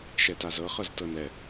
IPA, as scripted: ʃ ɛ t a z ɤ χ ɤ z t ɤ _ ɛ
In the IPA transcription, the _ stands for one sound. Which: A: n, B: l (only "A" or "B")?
A